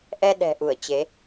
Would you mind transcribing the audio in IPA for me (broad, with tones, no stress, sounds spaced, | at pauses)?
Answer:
ʔ ɛ˧ ɗ ɛ̤˨˩ ʔ u˧˩ ə̯ t͡ɕ e˨˦